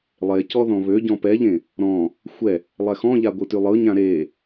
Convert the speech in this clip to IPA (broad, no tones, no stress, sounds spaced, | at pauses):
lˠ e c ɔ ð ɔ̃ β ø ɟ ɔ̃ p ɛ ʎ ẽ | ɾ ɔ̃ | xʷ ɛ | lˠ ɛ x ɔ̃ ʎ a ɡʷ ɯ t y lˠ ɯ ɲ ã ɾ e